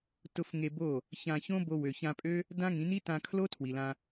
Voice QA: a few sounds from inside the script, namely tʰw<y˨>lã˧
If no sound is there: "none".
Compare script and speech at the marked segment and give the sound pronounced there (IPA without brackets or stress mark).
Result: i˨